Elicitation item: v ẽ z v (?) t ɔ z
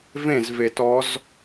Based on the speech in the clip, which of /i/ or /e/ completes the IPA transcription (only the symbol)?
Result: e